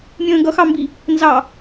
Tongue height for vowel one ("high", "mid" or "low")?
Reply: mid